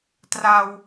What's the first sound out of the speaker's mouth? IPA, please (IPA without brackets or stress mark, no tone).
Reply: t